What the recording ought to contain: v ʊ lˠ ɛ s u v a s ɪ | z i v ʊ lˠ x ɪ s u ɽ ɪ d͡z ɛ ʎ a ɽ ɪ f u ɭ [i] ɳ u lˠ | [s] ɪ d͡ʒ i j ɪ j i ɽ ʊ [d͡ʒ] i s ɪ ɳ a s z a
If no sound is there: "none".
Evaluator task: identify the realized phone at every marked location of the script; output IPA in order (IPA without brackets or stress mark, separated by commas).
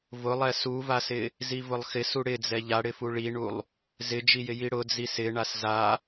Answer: i, z, d͡z